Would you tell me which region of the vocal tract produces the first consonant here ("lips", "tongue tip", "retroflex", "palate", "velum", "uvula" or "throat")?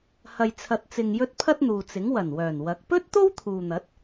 throat